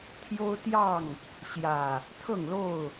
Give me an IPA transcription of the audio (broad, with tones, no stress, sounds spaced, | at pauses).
t̪ʰ j o˦ ʊ̯ t̪ j ɑ˥˨ ŋ | ɕ j ä˨˩ | t̪ʰ ɤ˥˨ ŋ l o˥˨ ʊ̯